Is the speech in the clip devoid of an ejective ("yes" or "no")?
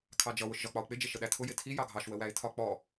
yes